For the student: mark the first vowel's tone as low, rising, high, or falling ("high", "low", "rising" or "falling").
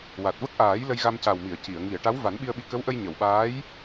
low